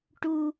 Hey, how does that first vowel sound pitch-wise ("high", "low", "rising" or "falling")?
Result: high